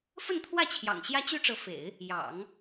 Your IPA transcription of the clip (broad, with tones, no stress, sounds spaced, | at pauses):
f ə˥˧ n t̪ʰ w ä˥˩ t͡ɕʰ j ɑ̰˨˩ ŋ ɕ j ä˥ t͡ɕ y˥ ʈ͡ʂ ɤ˧˥ f ḛ˨˩˦ ɪ̯ | j ɑ̰˨˩˦ ŋ